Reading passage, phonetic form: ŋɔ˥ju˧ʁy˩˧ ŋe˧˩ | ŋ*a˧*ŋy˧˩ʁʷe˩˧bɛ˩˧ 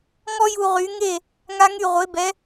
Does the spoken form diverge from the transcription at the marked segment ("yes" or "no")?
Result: no